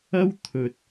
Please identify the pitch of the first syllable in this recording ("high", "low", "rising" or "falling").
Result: high